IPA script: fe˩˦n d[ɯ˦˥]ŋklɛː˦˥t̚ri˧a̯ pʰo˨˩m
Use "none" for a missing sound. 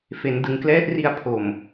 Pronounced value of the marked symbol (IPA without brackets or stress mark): ɯ˩˦